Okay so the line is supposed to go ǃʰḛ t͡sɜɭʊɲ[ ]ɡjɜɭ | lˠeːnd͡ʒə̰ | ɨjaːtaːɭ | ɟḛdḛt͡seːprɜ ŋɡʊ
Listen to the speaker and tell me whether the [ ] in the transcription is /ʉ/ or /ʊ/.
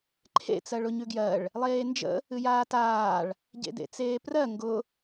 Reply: ʉ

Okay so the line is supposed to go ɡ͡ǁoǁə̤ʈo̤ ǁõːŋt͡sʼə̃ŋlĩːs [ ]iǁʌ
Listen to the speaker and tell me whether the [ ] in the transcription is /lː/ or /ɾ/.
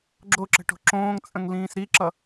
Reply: ɾ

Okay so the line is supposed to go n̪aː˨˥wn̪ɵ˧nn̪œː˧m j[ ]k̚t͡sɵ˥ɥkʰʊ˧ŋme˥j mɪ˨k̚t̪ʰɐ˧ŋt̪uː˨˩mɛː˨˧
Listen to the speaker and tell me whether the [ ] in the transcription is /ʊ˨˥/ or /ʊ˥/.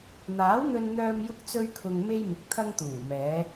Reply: ʊ˥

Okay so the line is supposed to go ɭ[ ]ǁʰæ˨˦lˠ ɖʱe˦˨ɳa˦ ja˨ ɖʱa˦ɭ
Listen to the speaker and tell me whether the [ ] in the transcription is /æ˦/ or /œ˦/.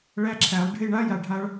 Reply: æ˦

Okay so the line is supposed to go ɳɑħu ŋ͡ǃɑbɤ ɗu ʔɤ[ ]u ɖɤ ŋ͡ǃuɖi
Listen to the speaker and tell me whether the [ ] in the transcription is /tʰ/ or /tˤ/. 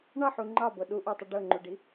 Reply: tˤ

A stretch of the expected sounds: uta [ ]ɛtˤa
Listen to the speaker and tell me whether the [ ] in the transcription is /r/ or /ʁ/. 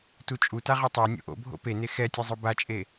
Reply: ʁ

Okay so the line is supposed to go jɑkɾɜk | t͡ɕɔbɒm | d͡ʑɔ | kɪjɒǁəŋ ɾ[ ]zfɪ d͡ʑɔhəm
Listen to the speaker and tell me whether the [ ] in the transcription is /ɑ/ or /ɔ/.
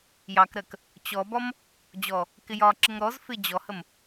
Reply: ɔ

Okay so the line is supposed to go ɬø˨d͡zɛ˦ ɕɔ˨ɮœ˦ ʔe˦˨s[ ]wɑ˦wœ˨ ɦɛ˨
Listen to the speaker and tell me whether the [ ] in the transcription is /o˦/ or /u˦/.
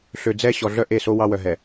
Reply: o˦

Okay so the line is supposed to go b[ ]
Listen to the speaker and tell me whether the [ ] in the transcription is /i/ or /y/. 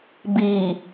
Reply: i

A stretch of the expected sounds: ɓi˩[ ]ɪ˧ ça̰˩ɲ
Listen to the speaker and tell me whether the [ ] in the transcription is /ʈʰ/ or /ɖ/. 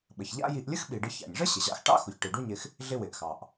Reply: ɖ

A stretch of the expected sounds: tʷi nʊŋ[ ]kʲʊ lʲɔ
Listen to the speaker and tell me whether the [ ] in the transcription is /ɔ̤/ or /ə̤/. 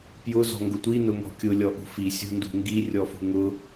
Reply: ɔ̤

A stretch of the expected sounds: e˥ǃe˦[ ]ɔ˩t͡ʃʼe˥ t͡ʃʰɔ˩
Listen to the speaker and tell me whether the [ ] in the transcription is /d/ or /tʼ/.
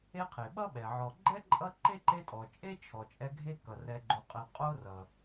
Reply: tʼ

